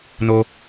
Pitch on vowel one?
low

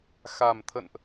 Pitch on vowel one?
low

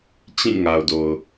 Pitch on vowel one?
falling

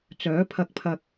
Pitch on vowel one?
rising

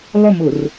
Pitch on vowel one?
falling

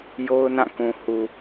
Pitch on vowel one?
high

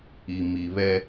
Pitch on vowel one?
low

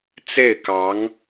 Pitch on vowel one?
falling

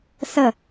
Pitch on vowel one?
falling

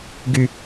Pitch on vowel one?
low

